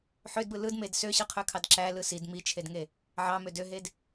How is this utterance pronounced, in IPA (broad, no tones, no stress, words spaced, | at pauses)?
ħødbɯ lɯdmed søɕɯqʰøkʰɑd ǁælɯ sid mit͡ʃʰedŋe | ʕɑmød øɦed